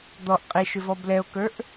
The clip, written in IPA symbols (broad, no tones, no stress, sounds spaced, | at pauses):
d̪ ɔ ʔ qʼ e ʃ ʏ v ɔ b l ɛ o̯ k ə˞ ʔ